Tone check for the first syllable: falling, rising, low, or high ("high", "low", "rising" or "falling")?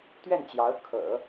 falling